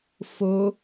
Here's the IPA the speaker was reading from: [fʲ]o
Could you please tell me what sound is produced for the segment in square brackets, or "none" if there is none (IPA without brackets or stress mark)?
f